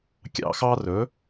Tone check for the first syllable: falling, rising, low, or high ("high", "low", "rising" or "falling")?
high